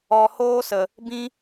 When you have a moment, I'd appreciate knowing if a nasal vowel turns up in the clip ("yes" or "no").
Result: yes